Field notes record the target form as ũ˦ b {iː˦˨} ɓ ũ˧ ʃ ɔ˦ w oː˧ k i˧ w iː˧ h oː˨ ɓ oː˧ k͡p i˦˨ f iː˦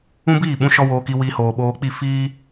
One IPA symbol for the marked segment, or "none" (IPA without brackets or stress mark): iː˦˨